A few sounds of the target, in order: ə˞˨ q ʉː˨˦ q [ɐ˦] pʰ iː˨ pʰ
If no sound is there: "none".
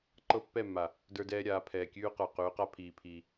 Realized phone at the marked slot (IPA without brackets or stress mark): a˦